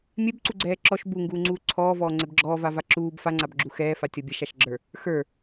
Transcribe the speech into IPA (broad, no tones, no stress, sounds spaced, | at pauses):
mʲ ɛ b ǀ u ɡ͡ǀ ɛː ǁ ɔ ʃ b u ŋ ɡ uː ŋ͡ǀ uː ǀʰ ɔː v ɔː ŋ͡ǀ ɛ b ɡ͡ǁ ɔː v a v a ǁ uː b f a ŋ͡ǀ a b ɡ͡ǁ u x ɛː f a tʲ ɔ bʲ ɛ ʃ a ʃ ɡ͡ǁ ə˞ | x ə˞